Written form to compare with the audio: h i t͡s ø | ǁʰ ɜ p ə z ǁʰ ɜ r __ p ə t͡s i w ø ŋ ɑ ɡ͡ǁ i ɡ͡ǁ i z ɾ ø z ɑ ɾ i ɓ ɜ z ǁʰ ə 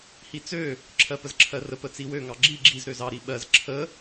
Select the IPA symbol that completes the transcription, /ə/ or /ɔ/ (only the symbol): ə